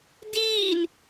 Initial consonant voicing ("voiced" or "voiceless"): voiced